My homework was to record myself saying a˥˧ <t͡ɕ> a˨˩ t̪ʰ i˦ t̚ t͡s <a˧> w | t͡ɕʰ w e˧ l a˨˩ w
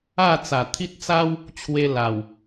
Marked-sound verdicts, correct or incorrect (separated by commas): incorrect, incorrect